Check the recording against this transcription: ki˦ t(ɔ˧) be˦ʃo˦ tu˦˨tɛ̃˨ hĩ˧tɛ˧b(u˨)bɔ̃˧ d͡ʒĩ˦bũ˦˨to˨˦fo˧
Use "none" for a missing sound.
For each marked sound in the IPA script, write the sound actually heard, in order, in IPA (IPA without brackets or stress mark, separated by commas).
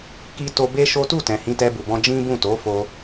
o˧, u˨